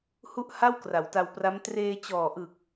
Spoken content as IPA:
h u˥˩ ʔ h a˥˩ w k r a˩˦ w t a˧ w p r a˦˥ m t r eː˧ t͡ɕ ɔː˨˩ ʔ ɯ˨˩ k̚

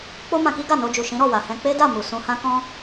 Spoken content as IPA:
k͡p o˦ m ã˧ k i˦ ɡ a˦˨ n o˧ d͡ʒ u˨ ʃ ĩ˨˦ ɾ ɔ˦˨ w a˨ h ɛ̃˧ k͡p e˦ d a˦˨ m u˨ s ũ˧ h ã˦ k ɔ̃˦

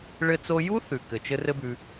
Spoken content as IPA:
ɭ ɘ˧ t͡s o˧ j u˦ θ ʉ˨ k ɘ˨ t͡ʃ ɘ˦ r ɘ˦ b ʉ˧

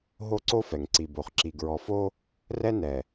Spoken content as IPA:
ɦ o˦ ǀ o˦ f ɛ˨ ŋ ǀ i˨ b o˨ χ ǁ i˨ ɡ ɹ ɔ˨ f o˦ | r ɛ˦ n ɛ˨

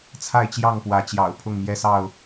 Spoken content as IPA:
t͡sʰ a˥˨ ɪ̯ t͡ɕ j ɑ˥˨ ŋ p w ä˨˦ t͡ɕ j ɑ̰˨˩ ʊ̯ pʰ ʊ˥˨ ŋ m j ɛ˦ s ɑ˥˨ ʊ̯

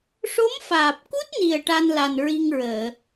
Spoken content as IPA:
ʂ o˧˥ m f aː˨˩ p̚ k u˦˥ t̚ n i˨˩ ə̯ ʈ a˧ n l a˨˩ n ɹ i˧ ŋ ɹ əː˨˩˨

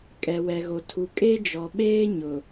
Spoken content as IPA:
kʼ ɛ˨ w ɛ˨ ɣ o˨ tʰ u˨ kʼ e˦ d͡ʒ ɔ˨ ɓ eː˦ ɲ ʊ˨

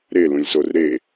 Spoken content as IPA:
ɾ e l ũ lʲ s o r ɾ e

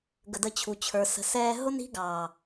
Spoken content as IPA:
ɡ ə˨ d ə˧ t͡ɕʰ u˨ t͡ɕʰ ə˞˨ s ə̤˨ s ɛː˧ ɦ ʊ˦ n i̤˦ ɡ ɑː˨

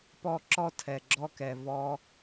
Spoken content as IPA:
p ɔ˦˨ ǁ ɔ˦ tʰ ɛ˨ ɡ͡ǁ ɔ˦ k ɛ˨ v ɔ˧

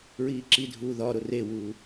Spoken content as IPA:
ɹ iː ǁ i dʱ uː ð ɒ ɾ o r e w uː

